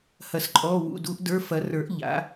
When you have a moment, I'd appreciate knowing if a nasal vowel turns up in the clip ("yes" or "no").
no